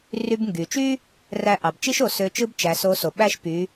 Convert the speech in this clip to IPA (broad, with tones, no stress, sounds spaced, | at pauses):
r y˧ b ŋ ɡ y˩ t͡ʃ y˥ | r æ˧ ʔ ɑ˩ b t͡ʃ i˥ ʃ o˩˧ s ø˧˥ t͡ʃ ɯ˥ b t͡ʃ æ˩˧ s o˧˥ s o˩ ɓ æ˥ ʃ p y˩˧